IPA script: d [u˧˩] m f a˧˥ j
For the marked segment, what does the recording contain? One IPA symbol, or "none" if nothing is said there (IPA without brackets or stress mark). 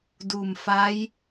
u˧˩